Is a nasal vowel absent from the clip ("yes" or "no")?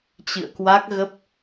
yes